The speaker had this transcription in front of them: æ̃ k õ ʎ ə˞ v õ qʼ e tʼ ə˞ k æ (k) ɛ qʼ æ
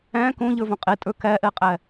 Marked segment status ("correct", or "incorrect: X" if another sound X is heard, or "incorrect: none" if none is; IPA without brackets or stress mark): incorrect: ʔ